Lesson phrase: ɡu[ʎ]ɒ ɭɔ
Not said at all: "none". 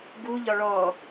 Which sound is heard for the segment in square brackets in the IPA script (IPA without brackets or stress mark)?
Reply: ʎ